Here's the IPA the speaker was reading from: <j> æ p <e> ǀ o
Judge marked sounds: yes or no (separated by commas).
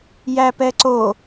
yes, no